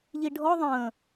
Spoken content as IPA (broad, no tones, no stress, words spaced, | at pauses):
ʎiɖʱɔ ðˤə̃ː